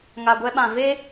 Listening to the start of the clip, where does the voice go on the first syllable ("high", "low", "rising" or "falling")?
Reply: low